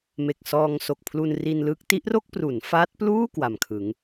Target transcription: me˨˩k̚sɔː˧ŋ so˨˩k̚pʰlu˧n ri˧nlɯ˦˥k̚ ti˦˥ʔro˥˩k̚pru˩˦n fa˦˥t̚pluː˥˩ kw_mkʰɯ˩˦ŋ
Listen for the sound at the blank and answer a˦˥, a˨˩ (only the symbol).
a˨˩